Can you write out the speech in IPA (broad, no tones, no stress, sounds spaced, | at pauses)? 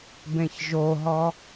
b ẽ ç ʒ o ɦ ɔ